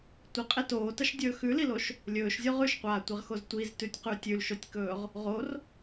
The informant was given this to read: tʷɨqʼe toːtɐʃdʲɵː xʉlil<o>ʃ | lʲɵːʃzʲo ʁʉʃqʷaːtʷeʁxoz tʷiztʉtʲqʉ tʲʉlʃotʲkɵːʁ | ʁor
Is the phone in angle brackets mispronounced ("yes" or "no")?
no